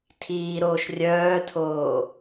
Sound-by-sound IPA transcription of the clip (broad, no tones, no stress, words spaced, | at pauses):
tʰiːɾoːʃ rʲœːtʰoː